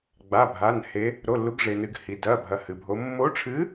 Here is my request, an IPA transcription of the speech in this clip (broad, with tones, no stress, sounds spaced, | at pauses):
ɡ͡b a˧˥˧ bʱ a˧˥˧ n h e˧˥ | ɾ o˧˥˧ lː u˧˥ ɡ ʐ e˧ n ɨ˧ ɡ h i˧ d ɐ˧˥˧ bʱ ɐ˧˥ h ɨ˧ bʱ o˧˥ mː o˧˥ ʈ͡ʂʰ ɨ˧˥